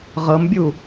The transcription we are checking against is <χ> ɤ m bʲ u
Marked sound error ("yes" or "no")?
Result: yes